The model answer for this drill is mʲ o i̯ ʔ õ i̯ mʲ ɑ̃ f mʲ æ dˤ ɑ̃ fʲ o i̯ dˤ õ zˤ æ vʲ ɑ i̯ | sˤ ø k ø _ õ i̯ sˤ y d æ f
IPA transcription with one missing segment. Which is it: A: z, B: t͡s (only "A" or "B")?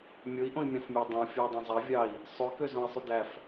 A